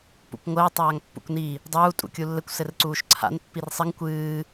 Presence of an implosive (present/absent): absent